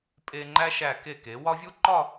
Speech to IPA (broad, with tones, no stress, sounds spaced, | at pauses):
pʼ e˧ ŋ͡ǃ æ˥ ʃ æ˧˩ k e˧˩ k e˩˧ w ɒ˥ vʲ u˥ ǃ ɒ˥˧